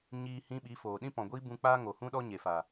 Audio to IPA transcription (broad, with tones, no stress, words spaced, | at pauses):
ɲiː˧hĩ˧ ɓi˨˦foː˨ ɗĩ˦pɔ̃˨ɡʷi˦ bũ˧k͡paː˦ŋo˨hũ˦ ɗɔ˦ɲe˨ fa˨